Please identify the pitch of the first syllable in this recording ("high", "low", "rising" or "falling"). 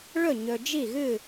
falling